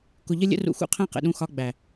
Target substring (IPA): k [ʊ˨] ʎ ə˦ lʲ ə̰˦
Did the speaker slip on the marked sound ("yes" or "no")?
no